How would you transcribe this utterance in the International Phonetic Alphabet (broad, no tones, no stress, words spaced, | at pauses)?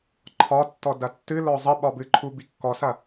ǃʰɒtːɔ dɐtːɨlɔ zˤə ɓɒbɨǃʰu bikːɔsɐ